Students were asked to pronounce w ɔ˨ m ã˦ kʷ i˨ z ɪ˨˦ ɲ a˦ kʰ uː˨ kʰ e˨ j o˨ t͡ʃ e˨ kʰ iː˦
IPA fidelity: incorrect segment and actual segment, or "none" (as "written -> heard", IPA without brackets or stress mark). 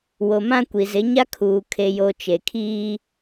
ɔ˨ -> o˨